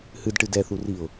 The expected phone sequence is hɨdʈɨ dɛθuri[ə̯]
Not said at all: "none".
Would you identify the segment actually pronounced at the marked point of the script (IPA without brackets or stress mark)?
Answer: ʊ̯